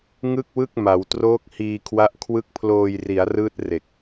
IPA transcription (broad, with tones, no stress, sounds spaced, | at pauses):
ŋ ɯ˥˩ k̚ w ɯ˥˩ k̚ m a˩˦ w t r oː˦˥ k̚ h iː˧ kʰ w a˦˥ ʔ kʰ w ɯ˦˥ k̚ pʰ l oː˧ j r i˩˦ a̯ r ɯː˦˥ t̚ r e˨˩ k̚